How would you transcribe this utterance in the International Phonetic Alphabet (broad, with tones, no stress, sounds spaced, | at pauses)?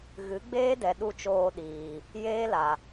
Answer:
ɣ ɨ˨˦ ɡ͡b eː˦ d ɛ˨ ɗ u˧ t͡ʃ oː˧ ɗ iː˨ | j eː˦ l a˨